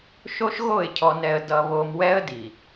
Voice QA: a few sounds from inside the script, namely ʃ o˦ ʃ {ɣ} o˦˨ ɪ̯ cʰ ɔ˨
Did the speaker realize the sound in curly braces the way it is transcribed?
yes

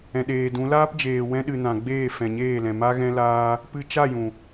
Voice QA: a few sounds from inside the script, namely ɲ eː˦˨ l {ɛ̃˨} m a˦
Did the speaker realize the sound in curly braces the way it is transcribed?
yes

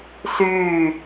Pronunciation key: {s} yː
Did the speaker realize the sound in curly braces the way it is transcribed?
yes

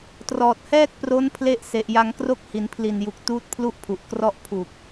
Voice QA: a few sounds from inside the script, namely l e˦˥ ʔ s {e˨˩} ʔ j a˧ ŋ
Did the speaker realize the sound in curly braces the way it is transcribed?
yes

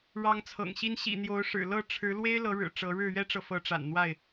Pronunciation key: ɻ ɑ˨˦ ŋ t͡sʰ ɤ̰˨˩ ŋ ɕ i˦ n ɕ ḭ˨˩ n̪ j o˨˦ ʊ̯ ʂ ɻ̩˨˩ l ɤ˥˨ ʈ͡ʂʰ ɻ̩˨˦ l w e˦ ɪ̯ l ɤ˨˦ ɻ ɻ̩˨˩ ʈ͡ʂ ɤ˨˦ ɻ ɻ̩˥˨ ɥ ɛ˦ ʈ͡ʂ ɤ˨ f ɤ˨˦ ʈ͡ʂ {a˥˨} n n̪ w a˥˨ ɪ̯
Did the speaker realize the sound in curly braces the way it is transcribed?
no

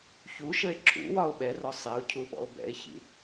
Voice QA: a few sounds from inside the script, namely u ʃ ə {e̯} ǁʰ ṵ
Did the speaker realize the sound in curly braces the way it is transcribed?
yes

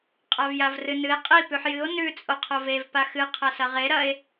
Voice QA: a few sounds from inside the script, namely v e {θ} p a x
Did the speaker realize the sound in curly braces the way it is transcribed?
no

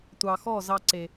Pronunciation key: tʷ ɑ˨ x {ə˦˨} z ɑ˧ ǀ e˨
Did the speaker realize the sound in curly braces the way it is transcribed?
no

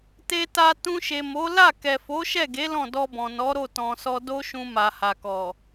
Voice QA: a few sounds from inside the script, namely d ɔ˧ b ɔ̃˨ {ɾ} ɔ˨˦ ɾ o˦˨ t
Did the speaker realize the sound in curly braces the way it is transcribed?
no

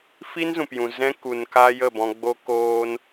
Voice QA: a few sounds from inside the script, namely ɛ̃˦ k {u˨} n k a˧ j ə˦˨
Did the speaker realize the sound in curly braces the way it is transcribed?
yes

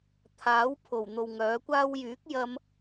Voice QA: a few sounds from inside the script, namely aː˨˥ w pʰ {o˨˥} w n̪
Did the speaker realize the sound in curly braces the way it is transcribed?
no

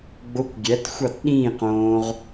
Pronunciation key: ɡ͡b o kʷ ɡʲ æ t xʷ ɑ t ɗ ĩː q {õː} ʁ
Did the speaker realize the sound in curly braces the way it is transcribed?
yes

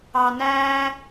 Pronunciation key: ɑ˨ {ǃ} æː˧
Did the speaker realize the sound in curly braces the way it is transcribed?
no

